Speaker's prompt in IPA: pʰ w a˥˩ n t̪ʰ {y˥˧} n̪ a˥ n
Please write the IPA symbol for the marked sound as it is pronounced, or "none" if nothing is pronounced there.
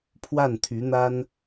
y˧˥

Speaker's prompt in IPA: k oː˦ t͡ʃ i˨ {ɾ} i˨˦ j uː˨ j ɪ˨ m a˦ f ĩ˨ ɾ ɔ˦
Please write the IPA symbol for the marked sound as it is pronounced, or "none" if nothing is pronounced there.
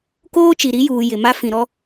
ɾ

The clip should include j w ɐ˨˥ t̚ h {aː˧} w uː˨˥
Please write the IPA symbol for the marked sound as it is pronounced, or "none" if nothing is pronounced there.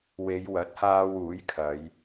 aː˧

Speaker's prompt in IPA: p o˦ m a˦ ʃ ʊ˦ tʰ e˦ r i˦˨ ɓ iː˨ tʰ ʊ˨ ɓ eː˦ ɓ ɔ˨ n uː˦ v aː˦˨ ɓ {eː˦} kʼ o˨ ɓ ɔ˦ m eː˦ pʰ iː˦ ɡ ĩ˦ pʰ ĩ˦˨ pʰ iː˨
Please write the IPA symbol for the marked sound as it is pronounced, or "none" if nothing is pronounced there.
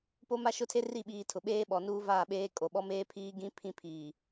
eː˦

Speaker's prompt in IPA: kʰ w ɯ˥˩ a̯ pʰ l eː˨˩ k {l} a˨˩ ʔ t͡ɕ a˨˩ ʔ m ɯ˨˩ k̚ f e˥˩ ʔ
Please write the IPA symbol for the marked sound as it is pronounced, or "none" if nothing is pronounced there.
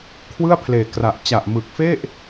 r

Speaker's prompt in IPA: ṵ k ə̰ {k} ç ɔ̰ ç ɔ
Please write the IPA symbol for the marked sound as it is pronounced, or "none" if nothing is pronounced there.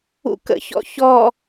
none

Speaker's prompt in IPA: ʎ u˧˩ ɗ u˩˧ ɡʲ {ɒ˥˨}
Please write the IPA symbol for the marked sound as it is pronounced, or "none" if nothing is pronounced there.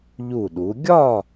ɒ˥˨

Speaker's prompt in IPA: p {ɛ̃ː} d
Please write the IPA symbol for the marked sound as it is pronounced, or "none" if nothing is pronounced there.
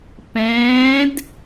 ɛ̃ː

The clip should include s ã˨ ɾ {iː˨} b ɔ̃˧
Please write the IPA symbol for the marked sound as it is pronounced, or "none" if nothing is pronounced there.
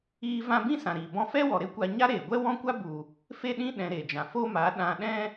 iː˨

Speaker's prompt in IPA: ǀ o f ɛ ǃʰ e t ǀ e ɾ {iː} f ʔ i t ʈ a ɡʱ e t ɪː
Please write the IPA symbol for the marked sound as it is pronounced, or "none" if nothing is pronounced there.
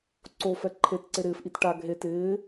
ɪː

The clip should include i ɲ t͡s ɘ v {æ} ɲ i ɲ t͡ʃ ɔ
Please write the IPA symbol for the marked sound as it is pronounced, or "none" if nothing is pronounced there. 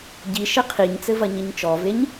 ɐ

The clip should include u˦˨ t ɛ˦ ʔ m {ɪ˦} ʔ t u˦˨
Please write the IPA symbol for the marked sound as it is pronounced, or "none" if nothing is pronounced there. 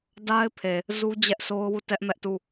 ɛ˦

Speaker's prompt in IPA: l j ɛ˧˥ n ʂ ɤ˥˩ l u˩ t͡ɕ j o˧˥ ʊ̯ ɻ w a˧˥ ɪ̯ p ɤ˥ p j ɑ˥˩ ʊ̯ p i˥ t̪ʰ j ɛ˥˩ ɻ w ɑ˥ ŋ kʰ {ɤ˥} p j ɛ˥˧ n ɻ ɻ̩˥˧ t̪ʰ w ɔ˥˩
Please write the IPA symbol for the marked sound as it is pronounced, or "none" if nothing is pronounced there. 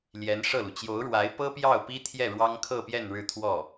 ɤ˥˧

